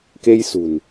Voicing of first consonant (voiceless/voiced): voiceless